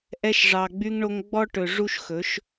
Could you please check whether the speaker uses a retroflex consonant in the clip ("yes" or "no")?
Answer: yes